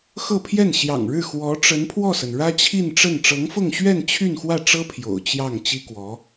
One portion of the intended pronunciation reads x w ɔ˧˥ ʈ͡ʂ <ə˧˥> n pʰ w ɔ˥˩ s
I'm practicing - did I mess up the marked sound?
no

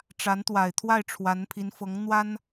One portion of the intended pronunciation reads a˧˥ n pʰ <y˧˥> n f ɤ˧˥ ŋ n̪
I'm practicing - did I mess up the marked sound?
yes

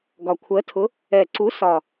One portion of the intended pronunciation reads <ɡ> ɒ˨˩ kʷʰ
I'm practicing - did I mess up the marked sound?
no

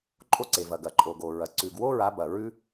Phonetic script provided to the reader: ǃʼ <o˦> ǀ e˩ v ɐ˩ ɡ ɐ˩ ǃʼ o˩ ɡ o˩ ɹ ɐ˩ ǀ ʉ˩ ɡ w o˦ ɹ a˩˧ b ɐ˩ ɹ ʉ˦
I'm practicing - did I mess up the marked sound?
no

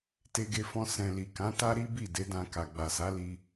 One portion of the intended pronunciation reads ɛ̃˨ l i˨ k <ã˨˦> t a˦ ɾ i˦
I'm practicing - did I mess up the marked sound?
no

